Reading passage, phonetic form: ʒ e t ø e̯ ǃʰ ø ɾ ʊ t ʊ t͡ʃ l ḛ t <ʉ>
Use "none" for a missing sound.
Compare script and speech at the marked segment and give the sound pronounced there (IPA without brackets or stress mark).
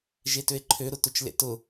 ʊ